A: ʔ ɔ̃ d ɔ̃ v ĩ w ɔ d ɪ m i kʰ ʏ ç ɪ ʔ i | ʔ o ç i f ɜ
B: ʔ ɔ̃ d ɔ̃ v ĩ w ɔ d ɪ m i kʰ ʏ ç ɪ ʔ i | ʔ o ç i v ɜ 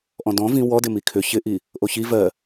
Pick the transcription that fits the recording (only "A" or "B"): B